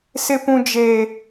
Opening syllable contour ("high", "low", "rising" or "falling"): high